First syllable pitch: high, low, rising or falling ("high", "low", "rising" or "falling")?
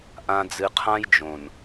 low